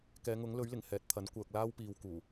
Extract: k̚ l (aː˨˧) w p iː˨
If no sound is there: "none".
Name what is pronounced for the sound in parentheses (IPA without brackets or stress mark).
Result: aː˥